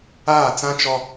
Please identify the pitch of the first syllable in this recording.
falling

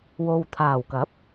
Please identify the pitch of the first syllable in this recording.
low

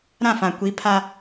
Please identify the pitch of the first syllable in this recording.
falling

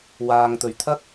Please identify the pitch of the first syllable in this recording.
low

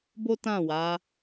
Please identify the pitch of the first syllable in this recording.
high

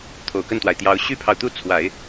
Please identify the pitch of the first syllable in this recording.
low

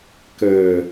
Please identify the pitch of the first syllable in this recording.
low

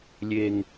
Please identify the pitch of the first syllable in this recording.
high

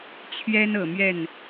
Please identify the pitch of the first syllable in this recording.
high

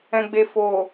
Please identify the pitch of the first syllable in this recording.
low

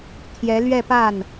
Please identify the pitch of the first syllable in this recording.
rising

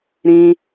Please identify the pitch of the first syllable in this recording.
high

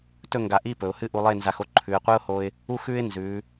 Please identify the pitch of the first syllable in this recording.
falling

